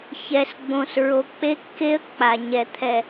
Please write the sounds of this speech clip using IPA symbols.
ç ɛ˨ s ɡ͡b õ˨ s ɹ o˨ k͡p e˦ kː e˦ ə̯ k͡p a˨ ɲ ɛ˨ t̪ʰ ɛ˨

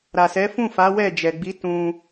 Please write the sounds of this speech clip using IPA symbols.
ɾ a˨ s ɛ˨˦ f ũ˦˨ f a˨˦ w ɛ˦˨ d͡ʒ ɛ˨ ɡ͡b i˨˦ t ũ˧

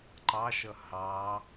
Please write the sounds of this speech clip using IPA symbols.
ǃ ɑ ʃ ʌ h ɑ

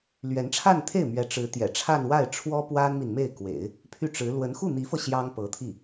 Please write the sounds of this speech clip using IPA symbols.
l ɥ ɛ˧˥ n ʈ͡ʂʰ a˥˧ n t̪ʰ e˥˩ ɪ̯ m ɥ ɛ˧˥ ʈ͡ʂ ɻ̩˧˥ t̪ j ɛ̰˨˩ ʈ͡ʂʰ a˥˧ n w a˥˩ ɪ̯ ʈ͡ʂʰ w ɔ˥ p w a˥ n m i˨ n m e˥˩ ɪ̯ k w ḛ˨˩˦ ɪ̯ | pʰ y˥˩ ʈ͡ʂ ɻ̩˧˥ l w ə˧˥ n x u˥˩ n̪ i˧˥ f ɤ˧ ɕ j ɑ˥ ŋ p ɤ˧˥ t̪ʰ i˥˩

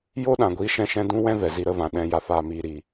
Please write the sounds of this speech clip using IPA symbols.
j o˦ ɗ ã˨ ɡʷ iː˧ ʃ ɛ̃˧ ʃ ɛ̃˧ d ũ˦ w ɛ̃˦ v ɛ˨ z i˧ ɾ ə˨˦ v ã˨ ɗ ɛ̃˧ j a˨ f aː˨ m iː˨ ɾ i˨

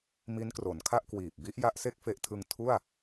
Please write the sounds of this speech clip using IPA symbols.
m i˦˥ n k r o˩˦ n kʰ a˥˩ ʔ k w iː˨˩ p̚ b i˦˥ ʔ j a˦˥ ʔ s e˥˩ k̚ f e˦˥ ʔ tʰ ɯ˧ ŋ tʰ u˥˩ a̯

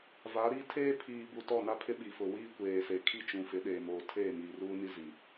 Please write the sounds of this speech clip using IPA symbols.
v a˨˦ ɾ i˦ tʰ eː˦ pʰ iː˨ b u˨ t ɔ˦˨ n a˦ pʰ ɪ˦ ɓ i˨ f ʊ˨ w iː˦ kʷ eː˨ s e˨ kʰ i˦ t͡ʃ ũ˨ f ɪ˨˦ ɗ eː˨ m oː˨ tʰ eː˦˨ m iː˨ r uː˦ n i˦ z i˨

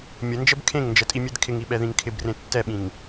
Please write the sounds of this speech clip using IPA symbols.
mʲ ə n d͡ʒ ə b kʰ ẽ ŋ n d͡ʒ ə tʼ i mʲ e d kʰ ɪ ŋ i ɓ ɛ ð ĩ ŋ kʰ ɪ b r ẽ tː ɛ ɓ ĩ ŋ

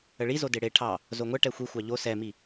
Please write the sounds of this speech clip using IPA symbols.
ə ɭ i z o d e ɽ e ʈʰ ɑ | z o ŋʷ ɛ ʈ ɛ xʷ i xʷ ɑ ʎ o s ɛ m i

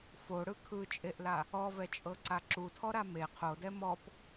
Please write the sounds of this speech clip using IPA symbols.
f o ɽ ɯ kʰ ɯ t͡ʃʼ e ʔ l a | ɔ v ɛ t͡ʃʼ ɤ ǀ a ǁ u tʰ ɔ ɾ a m e qʰ o d ɛ m ɔ p

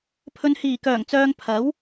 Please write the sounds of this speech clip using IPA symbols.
pʰ ɵ˨ n h iː˨˩ k œː˨˩ ŋ t͡s œː˨ ŋ pʰ ɐ˨˥ w

